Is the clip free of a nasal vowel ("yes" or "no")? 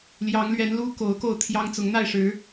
yes